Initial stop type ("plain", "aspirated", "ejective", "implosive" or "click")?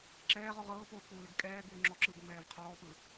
click